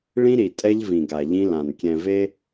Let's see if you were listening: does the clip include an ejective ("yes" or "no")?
yes